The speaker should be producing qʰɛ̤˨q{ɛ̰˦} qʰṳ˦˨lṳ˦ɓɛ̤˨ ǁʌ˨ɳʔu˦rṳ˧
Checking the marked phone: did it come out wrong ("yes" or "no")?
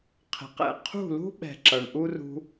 yes